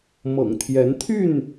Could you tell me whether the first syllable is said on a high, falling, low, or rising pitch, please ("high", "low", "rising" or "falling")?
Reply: low